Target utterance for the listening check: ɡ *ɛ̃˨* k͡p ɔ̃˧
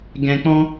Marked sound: correct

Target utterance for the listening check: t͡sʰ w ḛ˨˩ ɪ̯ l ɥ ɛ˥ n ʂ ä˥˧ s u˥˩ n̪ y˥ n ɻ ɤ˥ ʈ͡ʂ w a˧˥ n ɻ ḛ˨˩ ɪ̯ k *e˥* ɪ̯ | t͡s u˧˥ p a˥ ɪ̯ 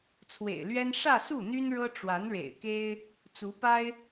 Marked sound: correct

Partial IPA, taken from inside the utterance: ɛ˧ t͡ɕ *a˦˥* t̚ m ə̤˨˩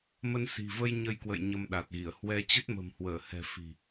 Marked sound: incorrect: ə˦˥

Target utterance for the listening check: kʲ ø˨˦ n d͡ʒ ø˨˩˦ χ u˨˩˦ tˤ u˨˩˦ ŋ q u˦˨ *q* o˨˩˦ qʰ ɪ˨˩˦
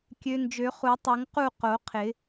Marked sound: correct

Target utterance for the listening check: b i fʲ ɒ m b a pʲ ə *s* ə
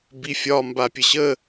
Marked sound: incorrect: ɕ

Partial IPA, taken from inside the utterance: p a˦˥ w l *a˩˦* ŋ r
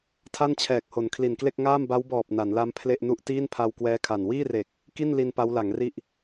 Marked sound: correct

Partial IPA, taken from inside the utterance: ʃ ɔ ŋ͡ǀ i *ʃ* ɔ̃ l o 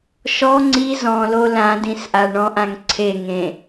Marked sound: incorrect: z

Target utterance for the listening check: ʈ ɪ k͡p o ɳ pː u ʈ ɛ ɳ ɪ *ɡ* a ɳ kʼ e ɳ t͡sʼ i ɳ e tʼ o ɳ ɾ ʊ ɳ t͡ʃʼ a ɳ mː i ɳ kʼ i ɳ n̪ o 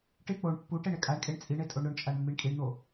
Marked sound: incorrect: kʼ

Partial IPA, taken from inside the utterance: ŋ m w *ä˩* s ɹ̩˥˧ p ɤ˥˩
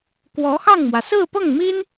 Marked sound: correct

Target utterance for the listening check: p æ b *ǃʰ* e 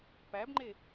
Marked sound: incorrect: ŋ͡ǃ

